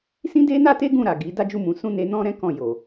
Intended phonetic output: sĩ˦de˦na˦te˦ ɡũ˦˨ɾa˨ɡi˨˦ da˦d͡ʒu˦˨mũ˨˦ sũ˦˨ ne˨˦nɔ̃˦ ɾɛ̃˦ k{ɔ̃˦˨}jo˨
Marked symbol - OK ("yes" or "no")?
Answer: yes